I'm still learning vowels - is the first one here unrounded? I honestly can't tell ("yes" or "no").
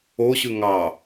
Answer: no